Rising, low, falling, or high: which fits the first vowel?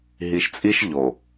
low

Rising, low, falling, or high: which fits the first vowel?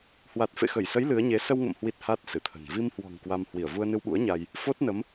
low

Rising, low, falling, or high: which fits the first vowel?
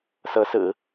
rising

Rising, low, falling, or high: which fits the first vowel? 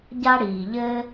high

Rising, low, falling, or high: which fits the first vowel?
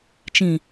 low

